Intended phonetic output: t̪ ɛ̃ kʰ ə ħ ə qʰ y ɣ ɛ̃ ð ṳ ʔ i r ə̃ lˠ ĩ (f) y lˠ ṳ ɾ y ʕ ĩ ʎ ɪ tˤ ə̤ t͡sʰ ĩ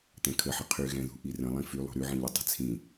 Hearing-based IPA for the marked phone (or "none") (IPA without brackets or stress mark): f